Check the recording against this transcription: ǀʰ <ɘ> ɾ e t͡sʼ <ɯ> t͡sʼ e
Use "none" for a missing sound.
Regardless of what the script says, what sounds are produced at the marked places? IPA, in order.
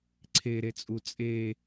e, u

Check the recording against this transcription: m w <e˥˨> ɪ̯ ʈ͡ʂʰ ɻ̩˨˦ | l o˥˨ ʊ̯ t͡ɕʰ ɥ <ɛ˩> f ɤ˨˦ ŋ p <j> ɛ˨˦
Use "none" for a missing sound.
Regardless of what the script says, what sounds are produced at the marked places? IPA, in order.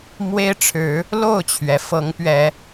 e˦, ɛ˩, ɥ

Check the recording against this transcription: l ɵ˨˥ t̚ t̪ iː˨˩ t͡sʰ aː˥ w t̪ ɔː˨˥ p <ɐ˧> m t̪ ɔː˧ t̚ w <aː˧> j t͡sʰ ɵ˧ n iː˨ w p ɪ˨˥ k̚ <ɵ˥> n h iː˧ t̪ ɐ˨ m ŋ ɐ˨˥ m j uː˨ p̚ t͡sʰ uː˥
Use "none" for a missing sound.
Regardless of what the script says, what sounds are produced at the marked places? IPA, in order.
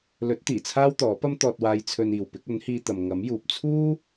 ɐ˥, aː˧, ɵ˨˥

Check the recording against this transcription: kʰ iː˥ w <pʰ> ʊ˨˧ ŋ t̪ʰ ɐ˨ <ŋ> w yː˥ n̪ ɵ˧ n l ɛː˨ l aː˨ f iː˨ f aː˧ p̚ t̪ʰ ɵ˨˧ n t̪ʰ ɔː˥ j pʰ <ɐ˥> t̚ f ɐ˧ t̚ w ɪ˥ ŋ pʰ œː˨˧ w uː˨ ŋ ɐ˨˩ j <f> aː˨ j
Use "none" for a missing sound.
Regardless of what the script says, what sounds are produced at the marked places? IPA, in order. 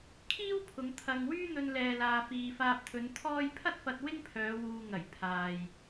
pʰ, ŋ, ɐ˥, pʰ

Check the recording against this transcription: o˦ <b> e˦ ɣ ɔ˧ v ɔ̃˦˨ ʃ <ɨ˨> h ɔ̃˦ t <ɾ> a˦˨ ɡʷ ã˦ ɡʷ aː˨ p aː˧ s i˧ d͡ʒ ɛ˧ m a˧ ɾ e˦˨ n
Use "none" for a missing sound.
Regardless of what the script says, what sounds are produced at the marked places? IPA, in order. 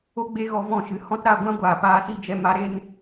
ɡ͡b, ɨ˨, ɾ

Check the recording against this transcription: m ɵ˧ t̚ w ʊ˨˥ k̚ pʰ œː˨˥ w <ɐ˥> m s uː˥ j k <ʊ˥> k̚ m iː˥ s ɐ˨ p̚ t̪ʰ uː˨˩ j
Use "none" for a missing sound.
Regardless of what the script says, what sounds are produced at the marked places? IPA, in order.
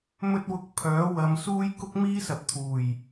ɐ˨˧, ʊ˥

